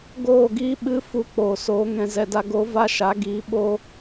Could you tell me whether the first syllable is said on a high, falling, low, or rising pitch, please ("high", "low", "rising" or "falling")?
falling